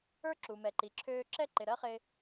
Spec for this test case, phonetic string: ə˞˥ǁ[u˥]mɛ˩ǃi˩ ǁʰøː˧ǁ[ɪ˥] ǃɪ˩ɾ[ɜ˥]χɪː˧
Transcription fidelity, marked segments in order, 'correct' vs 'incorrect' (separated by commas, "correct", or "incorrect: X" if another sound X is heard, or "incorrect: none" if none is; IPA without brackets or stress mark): incorrect: u˩, incorrect: ɛ˥, correct